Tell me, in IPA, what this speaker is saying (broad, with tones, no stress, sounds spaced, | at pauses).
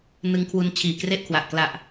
n ɯ˧ ŋ kʰ w u˧ n t͡ɕʰ iː˨˩ k r e˥˩ ʔ kʰ w a˨˩ ʔ k l a˨˩ ʔ